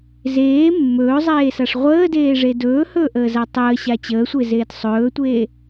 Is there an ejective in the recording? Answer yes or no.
no